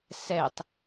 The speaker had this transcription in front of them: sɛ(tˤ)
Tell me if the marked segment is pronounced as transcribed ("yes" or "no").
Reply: yes